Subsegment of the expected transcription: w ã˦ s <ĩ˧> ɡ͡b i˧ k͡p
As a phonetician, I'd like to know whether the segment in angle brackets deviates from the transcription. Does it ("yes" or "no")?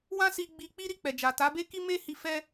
yes